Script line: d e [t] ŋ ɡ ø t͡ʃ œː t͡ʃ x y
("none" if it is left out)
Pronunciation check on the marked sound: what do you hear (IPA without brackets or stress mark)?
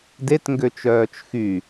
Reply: t